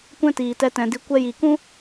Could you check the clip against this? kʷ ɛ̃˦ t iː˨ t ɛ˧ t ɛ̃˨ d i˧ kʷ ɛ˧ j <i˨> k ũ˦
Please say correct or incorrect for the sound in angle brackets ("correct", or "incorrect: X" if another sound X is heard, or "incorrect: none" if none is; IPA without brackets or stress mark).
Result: correct